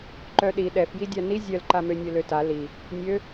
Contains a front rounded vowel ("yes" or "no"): yes